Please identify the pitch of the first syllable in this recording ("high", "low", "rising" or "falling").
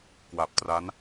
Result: low